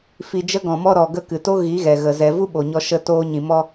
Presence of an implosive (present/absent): present